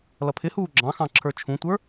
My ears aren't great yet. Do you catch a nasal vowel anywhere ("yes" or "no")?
yes